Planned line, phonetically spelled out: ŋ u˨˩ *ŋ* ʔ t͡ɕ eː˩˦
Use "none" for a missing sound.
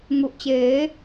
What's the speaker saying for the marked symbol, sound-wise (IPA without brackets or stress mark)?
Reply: none